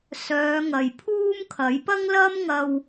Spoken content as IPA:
sœː˨˧ŋɐ˨jpʰuː˥mkʰɐ˨˥j pɐ˥ŋlɐ˥mŋɐ˧w

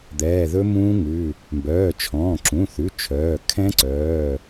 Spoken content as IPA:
d̪ɛː˩˧˩ðɵ˦˥mũː˦˥ŋʉ˩˧˩ | mbœː˩˧˩t͡ʃʰɔ̃ː˩˧˩ ǁũ˩˧˩θʉ˩˧˩ t͡ʃʰœː˩˧˩ kʰɛ̃˦˥ǀœː˩˧˩

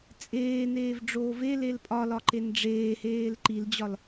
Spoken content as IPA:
t͡sʼeːneːvɖ͡ʐoː velel pʼɒlɒǃen ɖ͡ʐeːheːl ǃild͡ʑɒl

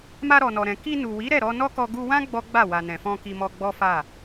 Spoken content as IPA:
ma˧ɾɔ˨nɔ˨ɾɛ̃˨ ki˧nu˨wi˨˦ ɾɛ˦˨ɾɔ˧nɔ˦kɔ˧ ɡu˧wã˦ ɡ͡bɔ˦ɡ͡ba˦˨ wa˨nɛ̃˨fɔ̃˧ ki˧mɔ˧ɡ͡bɔ˦fa˦˨

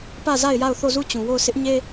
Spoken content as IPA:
pä˦˨za˦˨ɪ̯ja˦˨ʊ̯ θo˦˨zu˦˨t͡ɕũ˨wo˦˨ʊ̯ sɪ˦ʔɲe˦

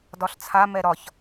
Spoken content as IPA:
dɒɬt͡sʰa mɛɾɒç

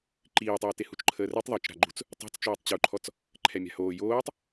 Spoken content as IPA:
ǃiːtˤoːte hut͡ʃǃʰəːrøtˤ ðˤœt͡ʃɾa̤ɡ͡ǃṳt͡s | tˤa̤t͡st͡ʃoːtˤ t͡ɕuǃʰɔt͡s | ǃʰɛmʲa̤hoː joːtˤ

